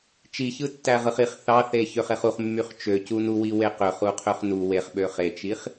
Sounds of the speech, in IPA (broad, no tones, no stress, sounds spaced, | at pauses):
t͡ʃ i ç ɯ tː æ ʁ ɯ χ i χ θ ɑ θ e ç ø χ e χ u χ mː y χ t͡ʃ ø c u n u w i w e q ø χ u qʰ ø χ n u w e χ ɓ ø χ e t͡ʃ i χ